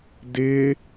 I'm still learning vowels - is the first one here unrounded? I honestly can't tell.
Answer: yes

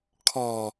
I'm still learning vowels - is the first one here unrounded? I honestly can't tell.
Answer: no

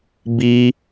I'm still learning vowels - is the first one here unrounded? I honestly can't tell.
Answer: yes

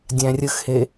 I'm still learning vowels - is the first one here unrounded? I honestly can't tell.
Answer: yes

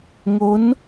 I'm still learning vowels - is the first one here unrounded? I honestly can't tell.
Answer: no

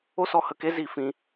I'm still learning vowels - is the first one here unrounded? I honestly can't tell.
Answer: no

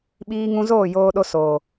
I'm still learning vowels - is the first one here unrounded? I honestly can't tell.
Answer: yes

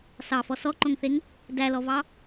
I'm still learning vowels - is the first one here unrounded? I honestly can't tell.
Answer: yes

